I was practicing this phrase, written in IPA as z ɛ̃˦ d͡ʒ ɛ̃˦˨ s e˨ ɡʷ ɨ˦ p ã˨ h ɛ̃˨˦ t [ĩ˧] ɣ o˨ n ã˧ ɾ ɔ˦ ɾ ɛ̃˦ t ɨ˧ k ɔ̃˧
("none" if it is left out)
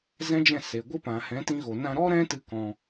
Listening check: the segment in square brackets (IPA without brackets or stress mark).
ĩ˧